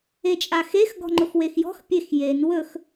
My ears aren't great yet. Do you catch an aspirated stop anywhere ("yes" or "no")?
no